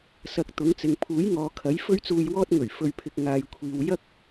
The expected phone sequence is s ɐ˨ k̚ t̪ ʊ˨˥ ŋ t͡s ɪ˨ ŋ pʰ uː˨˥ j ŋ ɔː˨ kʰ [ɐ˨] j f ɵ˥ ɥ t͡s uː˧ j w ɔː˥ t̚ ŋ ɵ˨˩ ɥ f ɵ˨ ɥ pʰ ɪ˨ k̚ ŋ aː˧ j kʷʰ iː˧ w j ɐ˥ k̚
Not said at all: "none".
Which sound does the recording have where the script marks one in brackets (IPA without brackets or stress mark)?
ɐ˨˥